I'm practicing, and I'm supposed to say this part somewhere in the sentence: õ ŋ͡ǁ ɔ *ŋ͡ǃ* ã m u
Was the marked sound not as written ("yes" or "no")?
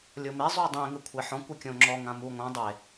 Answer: yes